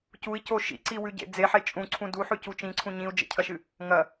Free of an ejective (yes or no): no